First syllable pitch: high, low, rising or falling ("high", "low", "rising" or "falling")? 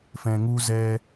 low